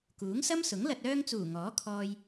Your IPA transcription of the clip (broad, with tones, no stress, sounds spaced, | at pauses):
k uː˨˥ ŋ s ɐ˥ m s ʊ˨˥ ŋ l ɐ˨ t̚ œː˧ ŋ t͡s uː˨˩ ŋ ɔː˨˥ kʰ ɔː˧ j